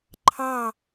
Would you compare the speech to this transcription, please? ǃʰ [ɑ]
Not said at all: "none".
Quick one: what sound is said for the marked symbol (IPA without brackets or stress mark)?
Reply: ɑ